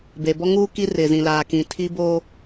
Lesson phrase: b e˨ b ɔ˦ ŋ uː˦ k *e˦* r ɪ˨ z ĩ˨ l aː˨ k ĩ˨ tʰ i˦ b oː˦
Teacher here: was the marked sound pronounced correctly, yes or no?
no